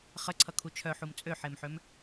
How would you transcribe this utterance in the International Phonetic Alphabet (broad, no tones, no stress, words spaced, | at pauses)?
χəǀʰʌkʰu t͡ʃʰœħum t͡sʼøħemħøm